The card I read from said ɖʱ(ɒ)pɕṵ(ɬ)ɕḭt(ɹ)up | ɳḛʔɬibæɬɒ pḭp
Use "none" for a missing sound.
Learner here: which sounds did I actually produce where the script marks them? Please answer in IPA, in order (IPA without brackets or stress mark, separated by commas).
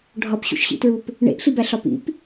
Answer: ɒ, ʃ, ɹ